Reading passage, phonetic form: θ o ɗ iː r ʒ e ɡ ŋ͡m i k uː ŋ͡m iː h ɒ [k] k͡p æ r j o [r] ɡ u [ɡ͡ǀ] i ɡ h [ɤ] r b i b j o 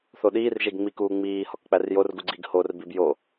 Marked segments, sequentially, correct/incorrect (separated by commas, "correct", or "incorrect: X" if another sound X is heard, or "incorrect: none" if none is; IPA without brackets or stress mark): correct, correct, correct, incorrect: o